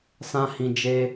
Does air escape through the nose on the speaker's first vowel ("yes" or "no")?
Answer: yes